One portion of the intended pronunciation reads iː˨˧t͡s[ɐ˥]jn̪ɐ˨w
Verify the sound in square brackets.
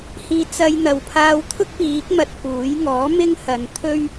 incorrect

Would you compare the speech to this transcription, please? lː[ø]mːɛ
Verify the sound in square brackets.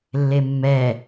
incorrect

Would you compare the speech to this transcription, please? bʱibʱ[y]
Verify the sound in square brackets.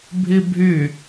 correct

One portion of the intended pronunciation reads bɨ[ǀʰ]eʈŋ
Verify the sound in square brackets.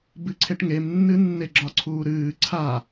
correct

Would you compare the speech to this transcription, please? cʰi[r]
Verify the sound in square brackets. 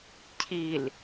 incorrect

